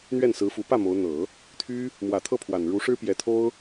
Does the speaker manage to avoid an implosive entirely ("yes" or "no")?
yes